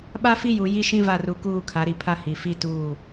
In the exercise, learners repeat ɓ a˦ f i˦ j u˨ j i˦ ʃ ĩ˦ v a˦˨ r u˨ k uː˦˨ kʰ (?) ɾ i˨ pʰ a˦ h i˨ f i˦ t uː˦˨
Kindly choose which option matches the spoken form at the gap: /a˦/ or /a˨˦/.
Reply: a˨˦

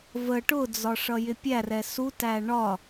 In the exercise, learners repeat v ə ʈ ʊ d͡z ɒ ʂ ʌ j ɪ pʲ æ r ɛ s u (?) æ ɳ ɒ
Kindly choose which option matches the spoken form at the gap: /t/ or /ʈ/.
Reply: t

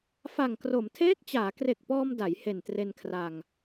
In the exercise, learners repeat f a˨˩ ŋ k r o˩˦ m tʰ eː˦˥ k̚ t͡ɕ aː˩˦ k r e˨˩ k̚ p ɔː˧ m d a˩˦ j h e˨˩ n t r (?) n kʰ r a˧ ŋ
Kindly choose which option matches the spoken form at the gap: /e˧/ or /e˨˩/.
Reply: e˧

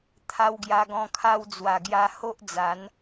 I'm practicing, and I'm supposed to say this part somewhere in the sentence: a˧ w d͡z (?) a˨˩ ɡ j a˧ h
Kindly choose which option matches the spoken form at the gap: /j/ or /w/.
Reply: w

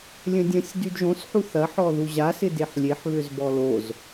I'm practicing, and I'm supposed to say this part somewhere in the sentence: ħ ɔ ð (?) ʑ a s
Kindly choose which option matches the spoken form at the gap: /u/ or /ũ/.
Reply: u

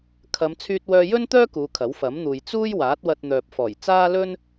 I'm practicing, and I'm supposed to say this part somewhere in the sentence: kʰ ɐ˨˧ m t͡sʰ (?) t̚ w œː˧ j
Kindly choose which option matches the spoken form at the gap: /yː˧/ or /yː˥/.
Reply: yː˧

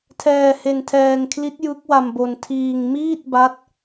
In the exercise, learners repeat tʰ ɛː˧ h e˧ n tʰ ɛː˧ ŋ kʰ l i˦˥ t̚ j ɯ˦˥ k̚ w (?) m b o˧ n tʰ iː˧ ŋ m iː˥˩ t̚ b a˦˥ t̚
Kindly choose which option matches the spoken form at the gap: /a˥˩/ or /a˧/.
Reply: a˧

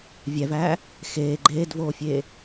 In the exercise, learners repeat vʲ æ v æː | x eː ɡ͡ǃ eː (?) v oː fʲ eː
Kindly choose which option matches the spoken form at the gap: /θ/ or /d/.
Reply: d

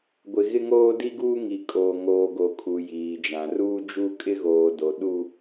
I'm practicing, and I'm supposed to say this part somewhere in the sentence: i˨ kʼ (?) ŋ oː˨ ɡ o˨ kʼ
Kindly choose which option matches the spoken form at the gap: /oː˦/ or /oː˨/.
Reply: oː˨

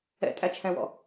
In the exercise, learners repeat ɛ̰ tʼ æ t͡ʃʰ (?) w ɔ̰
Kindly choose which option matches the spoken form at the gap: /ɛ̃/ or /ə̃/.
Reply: ɛ̃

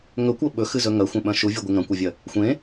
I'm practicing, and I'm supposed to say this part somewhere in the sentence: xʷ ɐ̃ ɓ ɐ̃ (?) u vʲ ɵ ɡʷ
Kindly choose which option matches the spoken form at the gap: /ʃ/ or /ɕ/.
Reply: ʃ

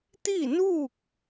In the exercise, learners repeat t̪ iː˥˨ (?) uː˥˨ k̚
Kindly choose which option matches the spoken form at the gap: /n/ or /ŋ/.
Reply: n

